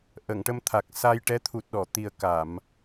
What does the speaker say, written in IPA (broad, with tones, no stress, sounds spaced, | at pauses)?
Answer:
ʔ ə˨˩˨ ŋ ʈ ə˧ m t̪ʰ a˨˩ k̚ s a˧ j ʈ ɛ˧˥ t̪ʰ u˨˩ t̚ ɗ ɔ˨˩˨ t̪ i˨˩ ə̯ k a˨˩˨ m